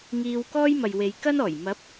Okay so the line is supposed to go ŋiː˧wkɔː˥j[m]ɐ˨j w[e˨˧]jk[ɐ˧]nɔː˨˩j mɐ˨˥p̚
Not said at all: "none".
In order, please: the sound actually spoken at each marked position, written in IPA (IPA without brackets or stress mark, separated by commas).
m, e˨˧, ɐ˥